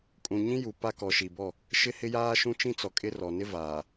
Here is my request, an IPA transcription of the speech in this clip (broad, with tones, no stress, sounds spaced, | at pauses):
kʼ ũ˨ ɲ ĩ˦ j u˨ p a˦ k ɔ˨ ʃ i˨ b ɔ˦˨ | ʃ ɪ˦ h ɪ˦ j aː˦ ʃ ũ˦ t͡ʃ ĩ˦ t͡s ɔ˨ kʼ ɪ˦ r ɔ˨ n ɪ˦ v aː˨